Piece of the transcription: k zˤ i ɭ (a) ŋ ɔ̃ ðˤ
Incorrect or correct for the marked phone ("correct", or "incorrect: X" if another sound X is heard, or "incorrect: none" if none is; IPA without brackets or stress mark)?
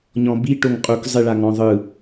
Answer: correct